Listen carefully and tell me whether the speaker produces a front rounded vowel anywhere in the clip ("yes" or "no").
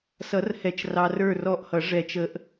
no